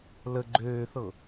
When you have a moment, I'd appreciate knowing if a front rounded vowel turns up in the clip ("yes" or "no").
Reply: yes